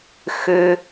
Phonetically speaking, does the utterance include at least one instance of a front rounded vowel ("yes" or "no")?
yes